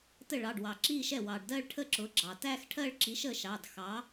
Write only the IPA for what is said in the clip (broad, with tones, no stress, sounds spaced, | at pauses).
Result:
t ə˥˩ ɭ ɑ˩˧˩ ɖ w ɑ˩ ǁ i˥˧ ʃ ɛ˥˩ w ɑ˩ ɖ d ɜ˥˧ ɭ ʈʰ ə˥˧ ǁ ʊ˩˥ ɡ͡ǁ ɑ˩ t æ˥˧ x ʈʰ ɜ˥˧ ɭ ǁ i˩˥ ʃ ə˥˧ ʃ ɑ˩˧˩ d x ɑ˩˥